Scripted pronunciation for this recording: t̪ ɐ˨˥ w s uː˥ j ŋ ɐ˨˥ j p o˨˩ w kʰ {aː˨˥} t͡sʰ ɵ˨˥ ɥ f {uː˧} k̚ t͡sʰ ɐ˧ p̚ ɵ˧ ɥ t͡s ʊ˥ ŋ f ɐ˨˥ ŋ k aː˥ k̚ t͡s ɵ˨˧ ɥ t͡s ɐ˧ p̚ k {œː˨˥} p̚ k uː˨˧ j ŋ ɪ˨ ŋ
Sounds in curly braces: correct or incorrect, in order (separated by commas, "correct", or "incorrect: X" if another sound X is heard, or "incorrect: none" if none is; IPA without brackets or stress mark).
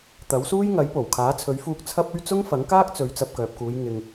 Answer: correct, correct, incorrect: œː˨